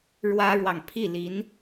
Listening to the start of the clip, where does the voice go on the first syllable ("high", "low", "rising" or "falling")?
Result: high